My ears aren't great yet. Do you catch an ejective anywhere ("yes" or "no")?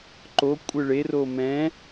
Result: yes